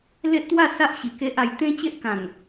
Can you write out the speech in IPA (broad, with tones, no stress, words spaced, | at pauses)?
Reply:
le˦ʔt̪wa˥˧sa˦ʔ ɕi˧ke˦ʔa˧j t̪ẽ˦ t͡ɕe˦ʔkã˨˩ŋ